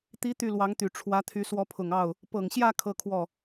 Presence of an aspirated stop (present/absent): present